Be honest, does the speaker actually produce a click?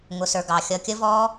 no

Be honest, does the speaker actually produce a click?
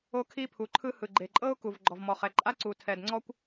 yes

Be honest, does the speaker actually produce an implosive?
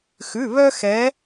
no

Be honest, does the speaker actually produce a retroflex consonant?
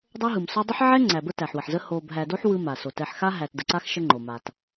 no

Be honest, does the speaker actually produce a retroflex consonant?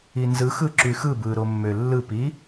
no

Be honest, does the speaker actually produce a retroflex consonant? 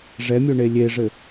yes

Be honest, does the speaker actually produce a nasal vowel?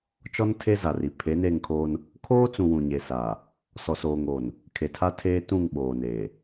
yes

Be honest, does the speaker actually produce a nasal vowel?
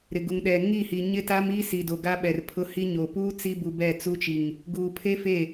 no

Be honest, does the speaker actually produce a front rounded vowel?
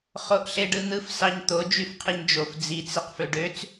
yes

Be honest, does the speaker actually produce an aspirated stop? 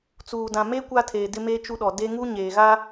yes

